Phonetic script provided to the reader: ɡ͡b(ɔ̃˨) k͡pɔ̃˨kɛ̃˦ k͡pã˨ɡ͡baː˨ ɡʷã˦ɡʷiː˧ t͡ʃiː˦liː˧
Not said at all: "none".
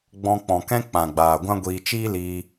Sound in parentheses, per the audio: ɔ̃˧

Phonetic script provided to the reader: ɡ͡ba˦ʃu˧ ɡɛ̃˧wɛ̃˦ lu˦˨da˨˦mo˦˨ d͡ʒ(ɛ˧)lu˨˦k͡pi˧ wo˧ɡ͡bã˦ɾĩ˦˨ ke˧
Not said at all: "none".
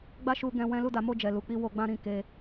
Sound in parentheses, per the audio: ɛ˨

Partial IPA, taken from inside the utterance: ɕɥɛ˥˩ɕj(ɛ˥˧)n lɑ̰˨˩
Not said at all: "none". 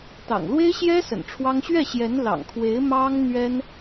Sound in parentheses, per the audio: ɛ˧˥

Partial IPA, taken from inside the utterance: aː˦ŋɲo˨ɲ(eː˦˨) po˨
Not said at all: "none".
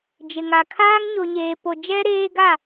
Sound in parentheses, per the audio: eː˨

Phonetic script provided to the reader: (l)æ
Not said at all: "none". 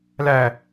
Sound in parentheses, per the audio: l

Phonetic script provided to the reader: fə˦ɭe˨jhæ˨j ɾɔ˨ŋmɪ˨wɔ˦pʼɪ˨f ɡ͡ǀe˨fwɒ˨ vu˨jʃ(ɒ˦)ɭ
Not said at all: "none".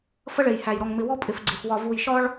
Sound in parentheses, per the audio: ɒ˦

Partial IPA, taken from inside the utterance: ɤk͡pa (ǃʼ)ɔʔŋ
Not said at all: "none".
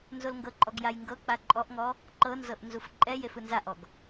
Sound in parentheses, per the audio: ǃʼ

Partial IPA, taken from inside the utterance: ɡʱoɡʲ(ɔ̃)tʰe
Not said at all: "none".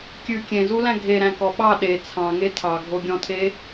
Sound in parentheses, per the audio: ɔ̃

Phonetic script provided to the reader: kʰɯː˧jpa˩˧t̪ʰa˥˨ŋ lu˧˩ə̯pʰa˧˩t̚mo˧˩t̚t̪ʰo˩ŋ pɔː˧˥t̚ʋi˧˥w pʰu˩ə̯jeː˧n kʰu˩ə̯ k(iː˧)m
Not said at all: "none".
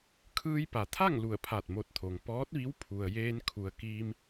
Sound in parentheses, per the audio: iː˧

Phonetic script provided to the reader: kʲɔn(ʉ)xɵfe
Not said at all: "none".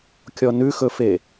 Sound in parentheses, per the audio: ʉ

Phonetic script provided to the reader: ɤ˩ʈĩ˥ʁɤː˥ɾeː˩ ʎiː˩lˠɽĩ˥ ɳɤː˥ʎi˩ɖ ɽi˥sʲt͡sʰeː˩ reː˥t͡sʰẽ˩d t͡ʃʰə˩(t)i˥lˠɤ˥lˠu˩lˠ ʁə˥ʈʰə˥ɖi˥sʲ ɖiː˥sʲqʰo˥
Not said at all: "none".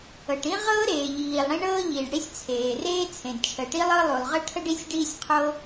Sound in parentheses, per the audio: ʈ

